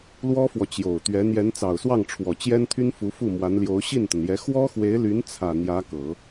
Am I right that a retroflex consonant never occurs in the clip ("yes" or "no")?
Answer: no